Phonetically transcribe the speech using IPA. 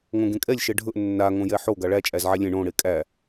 ŋõɡẽkʼɛlʲ ʃɛɖʱɵʔ nːa ŋõjɛħo ɡaɭæ t͡ʃʼæzʕælʲẽ ɳõ ɽekʼæ

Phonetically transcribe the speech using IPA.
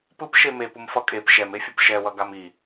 pɯpʃe mepumfʌ kʼep ʃɛmefʲop ʃɛwʌ ɡami

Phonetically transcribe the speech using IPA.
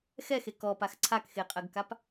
xɛxe kɔpax ǀʰakxeqʼɜɡkap

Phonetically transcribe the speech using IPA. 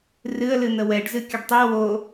rɨə̯ lɨn̪əwɛɖ zɨkʲəɖtˤi wo

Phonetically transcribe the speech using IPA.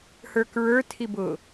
hə˞kɹə˞ tʰibʊ

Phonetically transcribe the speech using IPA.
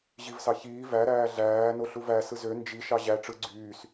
ʑivsɑçiː væɾæː ɮæː noɬuvæ sɯzø nd͡ʒi ʃɑʑæ ʈ͡ʂɯ ɡ͡ǀyːs

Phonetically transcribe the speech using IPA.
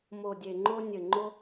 mo˨˩dʲe˨˩ŋ͡ǃo˧ nʲɘ˨˩ŋ͡ǃo˧

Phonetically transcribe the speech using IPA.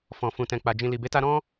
fɔ̃˨ fũ˨tɛ̃˨k͡pa˨ d͡ʒĩ˨li˨be˨˦ta˧ ɾɔ̃˧

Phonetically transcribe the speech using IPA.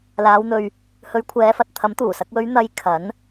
laː˨˧wn̪ɵ˧ɥ | hɵ˨˧ɥ kʷʰɛː˨˧fɐ˨t̚t̪ʰɐ˨˥m t̪uː˨˩sɐ˧k̚wɵ˨˧ɥ n̪ɐ˧j kʰɐ˨˥n

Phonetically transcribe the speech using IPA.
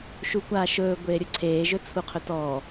ʃukʷaːʃɵː ɡʷeːɾʲuǀʰeː ʒɵt͡sʰuqʰɵtɔ

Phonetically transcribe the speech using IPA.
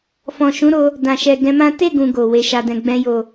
fɔ̃˨ʃũ˨˦ɾo˧ | dã˨ʃɛ˨ ɡɛ̃˧mã˦ te˦˨ɡũ˨ ɡo˨ we˨˦ʃa˧dɛ̃˧ɡ͡bɛ̃˦ jo˦˨

